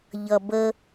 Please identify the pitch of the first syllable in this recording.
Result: low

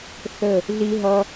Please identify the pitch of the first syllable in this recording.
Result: falling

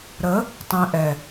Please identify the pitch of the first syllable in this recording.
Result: rising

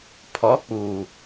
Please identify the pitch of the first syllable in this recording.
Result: rising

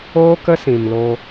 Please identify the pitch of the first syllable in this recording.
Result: high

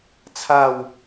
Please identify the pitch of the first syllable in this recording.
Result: falling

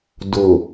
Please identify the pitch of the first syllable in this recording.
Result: low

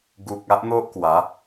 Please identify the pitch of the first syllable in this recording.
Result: low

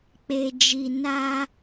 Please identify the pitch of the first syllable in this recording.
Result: low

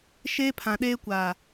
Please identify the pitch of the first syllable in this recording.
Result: high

